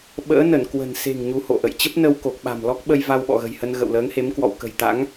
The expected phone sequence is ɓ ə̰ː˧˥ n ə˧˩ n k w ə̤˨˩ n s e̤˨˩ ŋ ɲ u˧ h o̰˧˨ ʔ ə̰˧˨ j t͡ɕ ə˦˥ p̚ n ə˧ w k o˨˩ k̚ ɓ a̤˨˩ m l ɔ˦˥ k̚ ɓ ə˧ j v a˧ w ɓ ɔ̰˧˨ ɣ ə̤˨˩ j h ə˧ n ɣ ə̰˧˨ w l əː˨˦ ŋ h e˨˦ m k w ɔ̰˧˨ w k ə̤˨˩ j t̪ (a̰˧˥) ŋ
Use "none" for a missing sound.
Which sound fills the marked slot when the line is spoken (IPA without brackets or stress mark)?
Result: a̰˧˥